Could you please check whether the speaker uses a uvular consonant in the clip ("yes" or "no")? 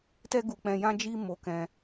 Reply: no